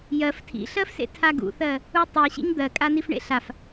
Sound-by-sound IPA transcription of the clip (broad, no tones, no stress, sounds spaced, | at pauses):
j ɜ f tʰ ḭ ɬ ɜ f s ḛ tʰ a ɡ ṵ θ ɜ | u tˤ i ɕ ḭ ɲ d̪ ɜ kʼ a n i f ɳ ḛ ɬ a f